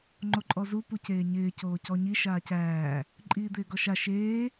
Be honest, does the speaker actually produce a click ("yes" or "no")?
yes